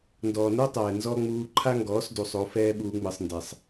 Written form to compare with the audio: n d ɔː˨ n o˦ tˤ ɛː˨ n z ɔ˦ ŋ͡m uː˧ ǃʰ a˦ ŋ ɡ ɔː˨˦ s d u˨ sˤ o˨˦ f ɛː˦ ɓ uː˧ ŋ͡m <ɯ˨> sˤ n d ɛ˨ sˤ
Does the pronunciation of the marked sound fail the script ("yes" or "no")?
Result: no